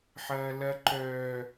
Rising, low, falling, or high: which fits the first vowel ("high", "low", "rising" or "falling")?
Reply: high